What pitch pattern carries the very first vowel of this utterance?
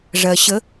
low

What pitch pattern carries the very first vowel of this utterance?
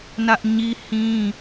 high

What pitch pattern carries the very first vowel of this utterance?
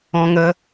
high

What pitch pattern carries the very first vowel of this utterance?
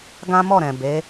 high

